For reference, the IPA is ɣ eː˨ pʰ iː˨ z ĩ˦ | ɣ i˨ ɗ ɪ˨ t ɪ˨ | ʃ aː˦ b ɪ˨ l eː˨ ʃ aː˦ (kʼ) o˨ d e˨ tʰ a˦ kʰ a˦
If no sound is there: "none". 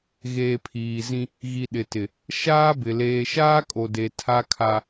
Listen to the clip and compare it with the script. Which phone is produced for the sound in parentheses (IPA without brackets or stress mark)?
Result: kʼ